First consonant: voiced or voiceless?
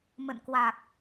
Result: voiced